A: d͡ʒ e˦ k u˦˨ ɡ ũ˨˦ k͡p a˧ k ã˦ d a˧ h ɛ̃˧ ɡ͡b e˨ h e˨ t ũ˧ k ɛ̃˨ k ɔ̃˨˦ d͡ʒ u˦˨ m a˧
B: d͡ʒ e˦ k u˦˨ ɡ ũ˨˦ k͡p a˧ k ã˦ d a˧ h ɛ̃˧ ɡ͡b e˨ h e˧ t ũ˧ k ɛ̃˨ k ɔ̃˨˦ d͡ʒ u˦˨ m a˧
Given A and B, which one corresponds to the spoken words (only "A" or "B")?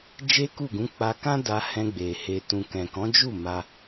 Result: B